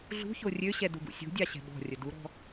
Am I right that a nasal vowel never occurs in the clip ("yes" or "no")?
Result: yes